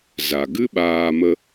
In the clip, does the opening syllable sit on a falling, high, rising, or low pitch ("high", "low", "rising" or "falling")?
low